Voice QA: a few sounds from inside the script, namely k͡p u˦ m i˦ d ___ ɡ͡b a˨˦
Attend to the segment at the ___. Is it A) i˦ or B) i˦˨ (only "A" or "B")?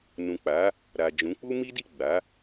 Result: B